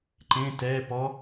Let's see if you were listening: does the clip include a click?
yes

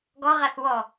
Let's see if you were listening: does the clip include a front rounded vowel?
no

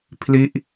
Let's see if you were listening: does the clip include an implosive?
no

